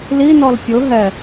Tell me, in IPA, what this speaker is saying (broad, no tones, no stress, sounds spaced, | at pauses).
l i n ɔ l pʲ ʊ ɦ ɛ